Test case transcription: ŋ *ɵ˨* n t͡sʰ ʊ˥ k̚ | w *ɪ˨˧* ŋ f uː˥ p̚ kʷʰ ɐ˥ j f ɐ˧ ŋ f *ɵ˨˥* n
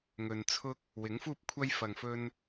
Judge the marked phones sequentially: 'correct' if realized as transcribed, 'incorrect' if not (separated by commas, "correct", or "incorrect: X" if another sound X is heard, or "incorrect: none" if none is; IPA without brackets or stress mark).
correct, incorrect: ɪ˨˥, incorrect: ɵ˥